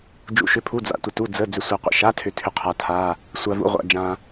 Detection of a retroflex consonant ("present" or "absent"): absent